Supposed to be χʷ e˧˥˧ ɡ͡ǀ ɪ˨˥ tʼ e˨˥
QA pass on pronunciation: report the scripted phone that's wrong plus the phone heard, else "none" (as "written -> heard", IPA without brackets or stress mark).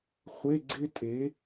ɪ˨˥ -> ɪ˥